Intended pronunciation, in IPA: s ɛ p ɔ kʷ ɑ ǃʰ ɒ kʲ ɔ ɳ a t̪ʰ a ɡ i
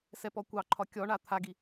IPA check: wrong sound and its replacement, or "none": none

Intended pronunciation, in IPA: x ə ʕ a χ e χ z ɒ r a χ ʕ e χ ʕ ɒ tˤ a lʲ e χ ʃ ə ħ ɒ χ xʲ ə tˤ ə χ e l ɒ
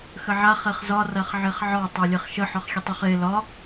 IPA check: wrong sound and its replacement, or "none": none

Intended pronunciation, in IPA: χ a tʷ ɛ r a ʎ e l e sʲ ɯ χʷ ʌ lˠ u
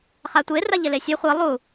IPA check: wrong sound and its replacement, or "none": ɛ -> e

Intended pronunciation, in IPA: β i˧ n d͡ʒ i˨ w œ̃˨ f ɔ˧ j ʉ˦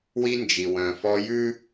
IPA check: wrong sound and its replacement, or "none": β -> w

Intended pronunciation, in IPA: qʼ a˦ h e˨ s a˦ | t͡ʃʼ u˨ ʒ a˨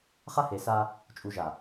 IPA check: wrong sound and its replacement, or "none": qʼ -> χ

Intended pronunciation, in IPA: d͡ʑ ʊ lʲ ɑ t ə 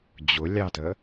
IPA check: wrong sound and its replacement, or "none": none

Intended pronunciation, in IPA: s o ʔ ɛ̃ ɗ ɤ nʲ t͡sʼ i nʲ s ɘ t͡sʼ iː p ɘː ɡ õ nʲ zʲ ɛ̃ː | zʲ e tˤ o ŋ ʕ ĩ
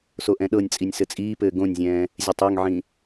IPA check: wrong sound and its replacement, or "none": none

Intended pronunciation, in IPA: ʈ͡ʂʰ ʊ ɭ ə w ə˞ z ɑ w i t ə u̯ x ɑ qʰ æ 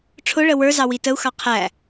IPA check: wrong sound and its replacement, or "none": none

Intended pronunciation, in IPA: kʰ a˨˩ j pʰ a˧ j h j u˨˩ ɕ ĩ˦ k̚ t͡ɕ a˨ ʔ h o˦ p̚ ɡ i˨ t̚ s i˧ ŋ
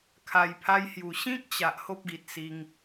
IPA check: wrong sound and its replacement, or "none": none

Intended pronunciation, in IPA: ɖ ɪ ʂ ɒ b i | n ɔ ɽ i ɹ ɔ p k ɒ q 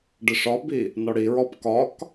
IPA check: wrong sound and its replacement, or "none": q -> k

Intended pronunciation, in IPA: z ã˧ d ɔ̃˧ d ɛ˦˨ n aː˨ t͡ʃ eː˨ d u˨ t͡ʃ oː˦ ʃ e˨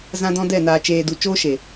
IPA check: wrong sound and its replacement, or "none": none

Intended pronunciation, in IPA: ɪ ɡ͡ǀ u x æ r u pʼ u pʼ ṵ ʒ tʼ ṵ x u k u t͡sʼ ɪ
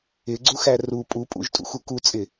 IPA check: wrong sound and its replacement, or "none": none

